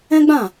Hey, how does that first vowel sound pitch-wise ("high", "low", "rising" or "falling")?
high